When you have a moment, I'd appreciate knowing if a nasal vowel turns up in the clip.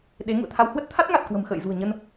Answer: no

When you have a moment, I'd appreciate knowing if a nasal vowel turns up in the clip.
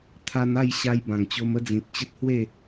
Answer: yes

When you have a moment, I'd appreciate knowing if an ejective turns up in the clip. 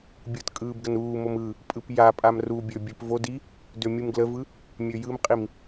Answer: yes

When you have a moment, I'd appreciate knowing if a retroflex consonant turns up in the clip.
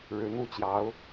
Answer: yes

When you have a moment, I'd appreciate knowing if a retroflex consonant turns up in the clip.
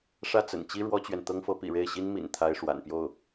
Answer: yes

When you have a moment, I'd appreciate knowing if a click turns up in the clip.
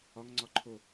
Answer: yes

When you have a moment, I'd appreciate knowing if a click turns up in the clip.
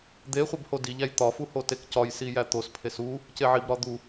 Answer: no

